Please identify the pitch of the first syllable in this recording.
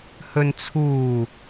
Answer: low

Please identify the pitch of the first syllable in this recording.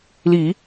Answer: low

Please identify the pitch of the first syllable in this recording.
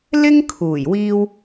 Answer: high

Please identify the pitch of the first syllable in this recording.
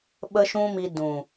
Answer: high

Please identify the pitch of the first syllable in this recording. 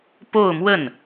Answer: falling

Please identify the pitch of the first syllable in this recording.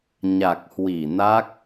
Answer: low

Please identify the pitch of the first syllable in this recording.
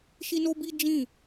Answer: high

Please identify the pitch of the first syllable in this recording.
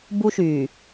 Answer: high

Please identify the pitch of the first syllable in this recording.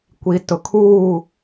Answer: low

